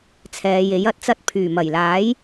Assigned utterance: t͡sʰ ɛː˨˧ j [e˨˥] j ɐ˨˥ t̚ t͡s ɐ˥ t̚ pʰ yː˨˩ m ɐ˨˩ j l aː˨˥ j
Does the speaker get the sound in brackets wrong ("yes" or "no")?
no